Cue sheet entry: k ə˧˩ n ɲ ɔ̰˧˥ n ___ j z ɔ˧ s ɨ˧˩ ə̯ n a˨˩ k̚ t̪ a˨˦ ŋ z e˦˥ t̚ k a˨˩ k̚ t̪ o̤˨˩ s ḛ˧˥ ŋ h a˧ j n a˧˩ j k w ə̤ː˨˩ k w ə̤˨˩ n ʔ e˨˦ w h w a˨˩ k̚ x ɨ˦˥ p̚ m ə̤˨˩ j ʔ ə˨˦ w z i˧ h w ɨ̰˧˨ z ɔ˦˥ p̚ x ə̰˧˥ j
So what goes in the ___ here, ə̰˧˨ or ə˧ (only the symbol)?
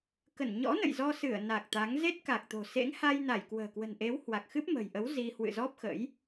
ə̰˧˨